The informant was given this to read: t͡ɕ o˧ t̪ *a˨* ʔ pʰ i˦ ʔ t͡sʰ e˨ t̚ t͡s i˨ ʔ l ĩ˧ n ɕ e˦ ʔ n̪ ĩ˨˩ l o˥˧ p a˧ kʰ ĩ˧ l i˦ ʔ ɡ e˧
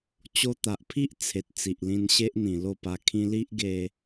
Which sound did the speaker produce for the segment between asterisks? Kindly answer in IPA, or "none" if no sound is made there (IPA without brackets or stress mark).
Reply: a˨